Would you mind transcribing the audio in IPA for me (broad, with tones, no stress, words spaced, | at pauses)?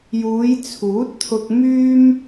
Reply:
juː˨˧jt͡sʰuː˨˥t̚t̪ʰʊ˧k̚myː˥m